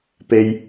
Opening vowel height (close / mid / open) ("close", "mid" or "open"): mid